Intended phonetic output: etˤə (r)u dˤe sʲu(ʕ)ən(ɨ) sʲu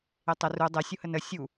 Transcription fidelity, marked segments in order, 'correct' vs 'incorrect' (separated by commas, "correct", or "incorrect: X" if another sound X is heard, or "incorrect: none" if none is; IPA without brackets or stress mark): correct, incorrect: h, incorrect: ə